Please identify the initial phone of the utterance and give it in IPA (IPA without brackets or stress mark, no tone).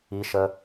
i